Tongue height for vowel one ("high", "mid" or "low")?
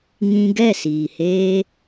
high